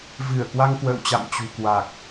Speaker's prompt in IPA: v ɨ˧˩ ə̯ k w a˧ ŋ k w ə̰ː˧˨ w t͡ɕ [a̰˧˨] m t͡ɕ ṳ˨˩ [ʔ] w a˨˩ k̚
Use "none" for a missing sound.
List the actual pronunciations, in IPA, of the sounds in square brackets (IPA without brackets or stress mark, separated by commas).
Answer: a̰˧˨, k